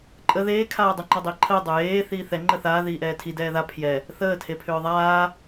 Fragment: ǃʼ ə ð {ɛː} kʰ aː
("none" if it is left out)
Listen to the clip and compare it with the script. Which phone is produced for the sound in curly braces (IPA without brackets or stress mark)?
eː